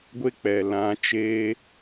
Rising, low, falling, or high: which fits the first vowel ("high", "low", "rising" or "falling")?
high